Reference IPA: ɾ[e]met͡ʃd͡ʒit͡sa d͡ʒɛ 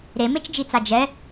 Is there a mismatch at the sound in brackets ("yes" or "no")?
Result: no